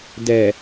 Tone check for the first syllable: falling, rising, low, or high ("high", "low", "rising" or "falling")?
low